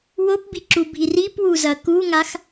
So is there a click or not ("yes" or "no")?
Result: yes